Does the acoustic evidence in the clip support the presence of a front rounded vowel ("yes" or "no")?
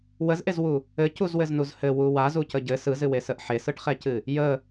no